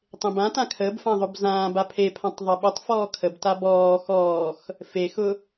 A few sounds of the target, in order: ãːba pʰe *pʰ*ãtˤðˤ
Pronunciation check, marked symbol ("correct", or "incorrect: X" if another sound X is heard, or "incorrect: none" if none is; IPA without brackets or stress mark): correct